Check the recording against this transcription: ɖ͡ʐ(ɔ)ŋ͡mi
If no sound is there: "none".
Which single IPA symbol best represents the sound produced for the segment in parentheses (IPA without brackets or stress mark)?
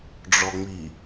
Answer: ɔ